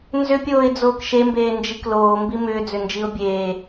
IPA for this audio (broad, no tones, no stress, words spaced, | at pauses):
nzʏpʲoːɪ̯d͡zoːk ʃembeːnd͡ʒik loːmbi mʏːd͡zʏnd͡ʒiʊ̯ bʲeː